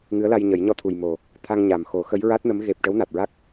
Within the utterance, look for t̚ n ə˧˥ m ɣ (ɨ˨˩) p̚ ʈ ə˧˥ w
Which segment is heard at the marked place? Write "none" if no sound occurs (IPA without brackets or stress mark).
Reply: e˨˩